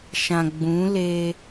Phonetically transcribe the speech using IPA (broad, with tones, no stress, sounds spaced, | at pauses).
ʃ ã˨ ɡ͡b ũ˨˦ l eː˦